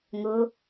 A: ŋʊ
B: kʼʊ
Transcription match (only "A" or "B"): A